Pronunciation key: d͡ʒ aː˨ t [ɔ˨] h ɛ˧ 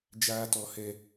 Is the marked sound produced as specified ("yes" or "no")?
yes